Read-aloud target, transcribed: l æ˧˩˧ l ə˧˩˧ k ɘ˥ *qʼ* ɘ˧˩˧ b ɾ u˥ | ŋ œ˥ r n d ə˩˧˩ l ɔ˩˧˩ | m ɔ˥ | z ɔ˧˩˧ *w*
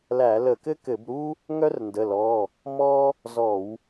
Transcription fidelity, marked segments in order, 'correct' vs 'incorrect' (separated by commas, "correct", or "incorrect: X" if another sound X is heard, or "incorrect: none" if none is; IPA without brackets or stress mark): incorrect: k, correct